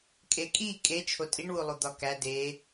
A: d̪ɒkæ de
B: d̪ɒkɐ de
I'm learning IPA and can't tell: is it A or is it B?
A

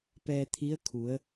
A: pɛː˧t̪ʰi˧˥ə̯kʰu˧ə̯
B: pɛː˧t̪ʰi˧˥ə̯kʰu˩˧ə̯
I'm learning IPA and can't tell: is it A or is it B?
B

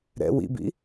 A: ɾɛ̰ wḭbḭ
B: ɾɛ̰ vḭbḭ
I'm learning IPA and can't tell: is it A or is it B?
A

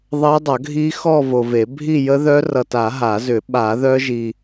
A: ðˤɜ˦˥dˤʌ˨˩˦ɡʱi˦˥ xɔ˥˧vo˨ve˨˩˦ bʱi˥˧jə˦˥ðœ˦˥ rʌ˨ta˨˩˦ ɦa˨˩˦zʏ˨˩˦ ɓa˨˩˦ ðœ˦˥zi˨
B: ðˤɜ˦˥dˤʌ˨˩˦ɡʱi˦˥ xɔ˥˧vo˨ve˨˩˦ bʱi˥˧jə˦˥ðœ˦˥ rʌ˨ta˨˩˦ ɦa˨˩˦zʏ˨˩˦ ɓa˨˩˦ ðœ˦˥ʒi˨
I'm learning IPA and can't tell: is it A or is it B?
B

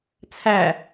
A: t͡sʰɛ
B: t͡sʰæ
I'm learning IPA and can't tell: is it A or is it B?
B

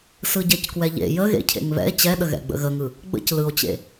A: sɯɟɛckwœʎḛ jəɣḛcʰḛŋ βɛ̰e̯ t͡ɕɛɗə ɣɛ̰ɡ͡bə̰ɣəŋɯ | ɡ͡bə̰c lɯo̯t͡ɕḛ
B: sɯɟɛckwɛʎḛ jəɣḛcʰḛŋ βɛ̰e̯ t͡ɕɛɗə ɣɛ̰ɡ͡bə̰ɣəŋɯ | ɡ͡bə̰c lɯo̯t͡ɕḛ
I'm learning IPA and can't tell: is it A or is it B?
B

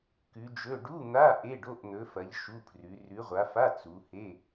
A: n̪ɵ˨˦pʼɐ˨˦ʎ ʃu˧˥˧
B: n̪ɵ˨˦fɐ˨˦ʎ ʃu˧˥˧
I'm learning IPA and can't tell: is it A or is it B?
B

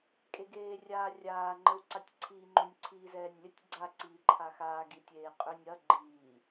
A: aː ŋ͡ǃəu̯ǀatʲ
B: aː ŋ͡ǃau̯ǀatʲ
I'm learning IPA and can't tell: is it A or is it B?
A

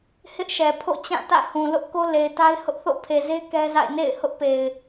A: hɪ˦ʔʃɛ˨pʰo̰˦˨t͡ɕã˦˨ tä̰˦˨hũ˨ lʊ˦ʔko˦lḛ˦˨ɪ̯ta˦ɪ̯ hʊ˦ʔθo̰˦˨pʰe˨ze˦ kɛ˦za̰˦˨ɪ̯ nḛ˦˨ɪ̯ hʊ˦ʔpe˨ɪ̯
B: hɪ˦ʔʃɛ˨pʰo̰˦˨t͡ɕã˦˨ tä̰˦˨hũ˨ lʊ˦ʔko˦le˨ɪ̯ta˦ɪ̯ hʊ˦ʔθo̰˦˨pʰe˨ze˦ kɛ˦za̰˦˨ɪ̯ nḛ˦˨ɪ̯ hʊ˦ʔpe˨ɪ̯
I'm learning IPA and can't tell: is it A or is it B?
B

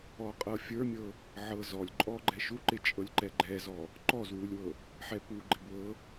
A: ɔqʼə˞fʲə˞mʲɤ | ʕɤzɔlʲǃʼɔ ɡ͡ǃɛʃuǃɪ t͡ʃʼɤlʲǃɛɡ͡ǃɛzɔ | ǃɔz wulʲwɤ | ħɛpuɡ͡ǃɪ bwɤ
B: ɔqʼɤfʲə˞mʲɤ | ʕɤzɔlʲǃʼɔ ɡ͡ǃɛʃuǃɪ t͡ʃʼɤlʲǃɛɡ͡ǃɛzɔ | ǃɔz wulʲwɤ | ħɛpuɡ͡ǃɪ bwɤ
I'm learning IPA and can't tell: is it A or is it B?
B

